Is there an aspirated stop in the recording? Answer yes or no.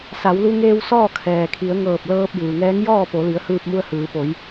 yes